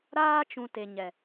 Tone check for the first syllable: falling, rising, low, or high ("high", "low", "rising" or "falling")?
high